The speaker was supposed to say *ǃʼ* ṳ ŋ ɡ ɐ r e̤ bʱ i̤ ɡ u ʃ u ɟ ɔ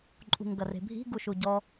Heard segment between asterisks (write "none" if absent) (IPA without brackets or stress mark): ǃʼ